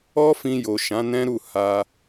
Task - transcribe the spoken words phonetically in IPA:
ɔ˦fĩ˧jo˨ ʃã˨˦nɛ̃˦ɾu˦˨ ha˧

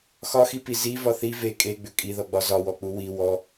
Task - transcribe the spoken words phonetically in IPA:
xɒxipi zivɒ θi ve kʼeɡ͡bʏ kʼiðɔɡ͡bɒ zɒwɔk͡pu wi wɔ

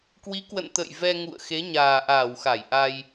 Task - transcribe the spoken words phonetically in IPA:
kwi˨˦kwə̰˧˨n t̪ə̰˧˨j vɛ˧ŋṵ˧˨ə̯ xe˨˦ɲaː˨˩ʔaː˧˩w xa˧˩jʔa˧j

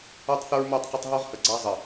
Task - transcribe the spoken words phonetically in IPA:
o˦tˤθə˦ɹmo˦˨tˤqə˦tˤ ɦo˦ʁhə˨ ɡ͡ǀa˦zˤə˨

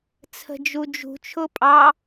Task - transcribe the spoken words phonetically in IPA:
t͡sʰə̤d͡ʒud͡ʒṳ t͡ʃʰʊpʼɑ

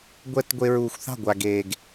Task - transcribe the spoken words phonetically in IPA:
ɡʷɛ˦tɡʷe˧ɹuː˨xʷ θɑ̤˦˨ɡʷa˨ɡeː˨ɡ

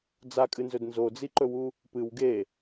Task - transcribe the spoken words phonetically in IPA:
d͡zakʼɨnzɵd nzod͡ziǃɵwu | pɨw ɡe

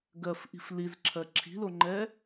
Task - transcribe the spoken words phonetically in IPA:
ɡɜfʔi̤f lizǁʰɜ ǁʰi̤loŋ͡ǃɛ

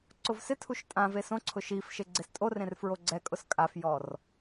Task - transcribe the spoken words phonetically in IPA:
ǀʊvsɪtʰuʃ tʼãve sõǀʰʊ ʃifʃe ɡ͡ǀestʼorẽr fɹoɡ͡ǀɛkʼʊs kʼafjɔr

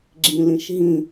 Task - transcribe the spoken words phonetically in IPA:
ɡ͡ǁĩlĩʃɦĩ

